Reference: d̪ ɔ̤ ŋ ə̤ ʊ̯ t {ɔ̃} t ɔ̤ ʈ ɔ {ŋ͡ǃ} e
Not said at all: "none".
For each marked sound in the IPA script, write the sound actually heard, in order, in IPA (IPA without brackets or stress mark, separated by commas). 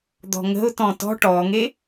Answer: ɔ̃, ŋ